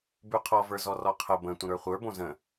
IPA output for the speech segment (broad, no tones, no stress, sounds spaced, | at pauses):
b ʉ qʰ ɔ v ə˞ z ɔ r ɔ qʰ ə b ə̃ tʷ ə̃ ɾ ə˞ χʷ ə˞ b õ z ə̃